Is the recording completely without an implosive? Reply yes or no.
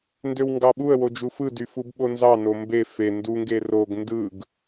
no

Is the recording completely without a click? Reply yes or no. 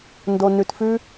yes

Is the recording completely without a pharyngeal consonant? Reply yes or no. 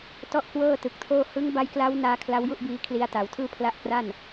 yes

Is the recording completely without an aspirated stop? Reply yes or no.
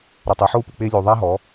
yes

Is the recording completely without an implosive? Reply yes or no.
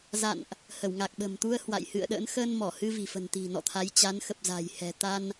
no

